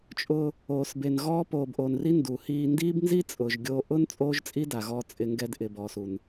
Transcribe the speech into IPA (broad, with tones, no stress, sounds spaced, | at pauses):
t͡ʃʼ ʊː˧ | oː˨ s b e˨ n ɣ ɔː˦ p oː˨ b ʔ o˨ n r i˦ n d u˨ h iː˧ n d iː˦ b n z i˦ t͡sʼ ʊː˨ ʒ ɡʲ oː˧ ʔ ʊː˦ n t͡sʼ oː˦ ʒ t͡sʼ i˦ d a˨ ɣ ɔː˧ t͡sʼ ɪ˧ ŋ ɡ ɛ˧ d ʔ ɪ˨ b ɔː˨ s u˨ n